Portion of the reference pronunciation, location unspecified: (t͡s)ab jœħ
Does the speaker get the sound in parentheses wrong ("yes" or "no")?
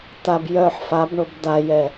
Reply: yes